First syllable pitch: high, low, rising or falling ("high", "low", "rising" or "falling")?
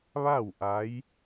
falling